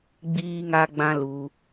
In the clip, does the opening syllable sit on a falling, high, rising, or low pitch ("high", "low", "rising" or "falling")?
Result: high